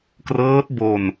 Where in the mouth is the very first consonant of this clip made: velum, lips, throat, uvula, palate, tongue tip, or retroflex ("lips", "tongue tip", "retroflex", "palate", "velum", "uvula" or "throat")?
velum